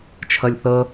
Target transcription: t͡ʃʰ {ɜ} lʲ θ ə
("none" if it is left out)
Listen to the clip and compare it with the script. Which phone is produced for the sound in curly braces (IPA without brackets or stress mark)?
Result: ɜ